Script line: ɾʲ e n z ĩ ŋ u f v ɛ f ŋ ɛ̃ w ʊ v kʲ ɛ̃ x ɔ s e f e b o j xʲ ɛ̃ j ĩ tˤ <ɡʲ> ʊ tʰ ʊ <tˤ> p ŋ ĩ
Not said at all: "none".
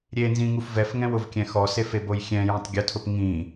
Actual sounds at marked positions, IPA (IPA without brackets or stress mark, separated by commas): ɡʲ, none